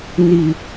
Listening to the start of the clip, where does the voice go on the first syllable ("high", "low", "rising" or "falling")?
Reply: low